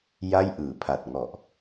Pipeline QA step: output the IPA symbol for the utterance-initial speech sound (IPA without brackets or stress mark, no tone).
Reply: j